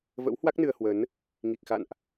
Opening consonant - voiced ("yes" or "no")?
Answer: yes